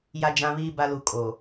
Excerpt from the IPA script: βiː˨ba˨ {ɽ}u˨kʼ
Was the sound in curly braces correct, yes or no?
no